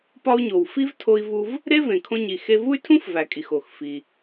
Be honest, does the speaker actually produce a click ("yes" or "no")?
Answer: no